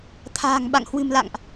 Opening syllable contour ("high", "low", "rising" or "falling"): low